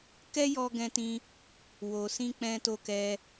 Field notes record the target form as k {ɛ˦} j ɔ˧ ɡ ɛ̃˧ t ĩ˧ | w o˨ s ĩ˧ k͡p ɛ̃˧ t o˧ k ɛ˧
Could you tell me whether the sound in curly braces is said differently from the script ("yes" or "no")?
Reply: no